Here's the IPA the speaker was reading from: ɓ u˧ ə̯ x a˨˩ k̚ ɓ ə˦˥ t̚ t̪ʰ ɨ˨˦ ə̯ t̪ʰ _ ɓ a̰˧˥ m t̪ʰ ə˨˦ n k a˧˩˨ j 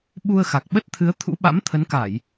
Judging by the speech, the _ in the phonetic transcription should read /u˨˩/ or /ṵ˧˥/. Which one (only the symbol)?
ṵ˧˥